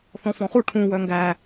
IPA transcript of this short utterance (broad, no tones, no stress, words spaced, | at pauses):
θɔ̃fɔ̃χu ʈʰũ wœŋɡæ